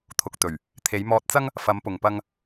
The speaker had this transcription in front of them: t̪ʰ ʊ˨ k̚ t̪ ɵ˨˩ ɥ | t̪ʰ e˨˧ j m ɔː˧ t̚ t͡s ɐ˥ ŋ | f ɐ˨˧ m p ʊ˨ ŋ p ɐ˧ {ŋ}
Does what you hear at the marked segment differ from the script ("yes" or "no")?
no